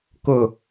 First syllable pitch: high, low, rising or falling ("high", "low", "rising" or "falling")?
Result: falling